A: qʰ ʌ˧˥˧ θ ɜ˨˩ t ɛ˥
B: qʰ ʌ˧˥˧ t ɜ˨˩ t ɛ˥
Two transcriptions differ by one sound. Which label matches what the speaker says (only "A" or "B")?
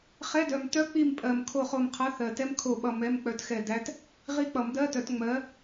A